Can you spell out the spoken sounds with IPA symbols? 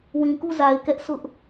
w ĩ˨ k u˦˨ z a˨ ɪ̯ k ɛ˦ ʔ s ʊ˦ ʔ

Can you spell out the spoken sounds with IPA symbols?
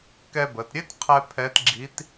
k ɛ˧ b ə˩˧ t ɾʲ e˥ t qʰ ɛ˧ pʰ ɛ˧˥ t ɡ͡ǁ i˧˥ t

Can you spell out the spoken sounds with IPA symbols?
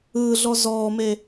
ɯː ɮ ɔ z ɔː m e

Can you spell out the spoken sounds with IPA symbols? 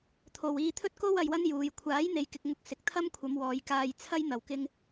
t̪ʰ o˨ w iː˧ t̪ʰ ɵ˥ t̚ k o˥ w ɐ˧ j w ɐ˥ n j uː˨ j kʷʰ aː˨˥ j n̪ e˨ j k ɪ˨ k̚ ŋ ʊ˧ k̚ s ɪ˨ k̚ t̪ʰ ɐ˥ m kʷʰ ɐ˨˧ m w ɔː˨˧ j k aː˧ j t͡sʰ ɐ˥ j n̪ ɐ˨˩ w k ɪ˧ ŋ

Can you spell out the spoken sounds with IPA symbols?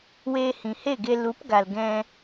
w eː˧ h ĩ˨ h e˦˨ ɡ e˧ l u˨˦ p ɡ a˨ l ɡ ɛ̃˧

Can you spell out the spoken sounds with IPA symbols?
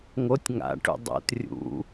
ŋ o tʲ ŋ a̰ ʈ ṵ dˤ o̰ t rʲ ṵ

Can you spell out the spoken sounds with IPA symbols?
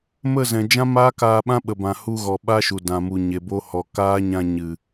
m ə˦˨ z ɛ̃˨ d͡ʒ ã˦ m aː˦ k aː˧ ɓ ã˦ ɓ ə˨ b ã˨ h u˧ ɣ ɔ˨ ɓ a˦ ʃ u˨ d ã˨ m u˨ ɲ e˨ b o˧ h ɔ˨ k aː˦ ɲ ã˧ ɲ ɨ˨

